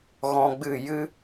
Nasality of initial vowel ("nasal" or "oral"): nasal